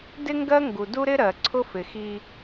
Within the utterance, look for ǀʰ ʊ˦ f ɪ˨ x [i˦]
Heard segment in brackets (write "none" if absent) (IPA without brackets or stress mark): i˦